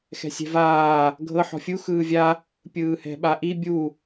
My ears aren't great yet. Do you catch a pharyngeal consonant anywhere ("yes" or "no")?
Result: yes